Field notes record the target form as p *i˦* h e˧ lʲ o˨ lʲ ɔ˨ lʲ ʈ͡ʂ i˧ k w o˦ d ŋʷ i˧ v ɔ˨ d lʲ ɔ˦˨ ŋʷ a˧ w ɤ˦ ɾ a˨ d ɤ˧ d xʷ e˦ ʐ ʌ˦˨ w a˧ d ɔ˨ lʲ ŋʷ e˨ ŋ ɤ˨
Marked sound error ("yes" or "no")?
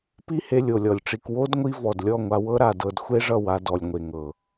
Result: no